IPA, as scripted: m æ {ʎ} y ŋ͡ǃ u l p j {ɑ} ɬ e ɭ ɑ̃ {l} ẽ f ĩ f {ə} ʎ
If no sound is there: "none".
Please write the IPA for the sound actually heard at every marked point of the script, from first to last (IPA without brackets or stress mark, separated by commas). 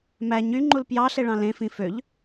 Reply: ɲ, ɑ, l, ø